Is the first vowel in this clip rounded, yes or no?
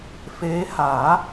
no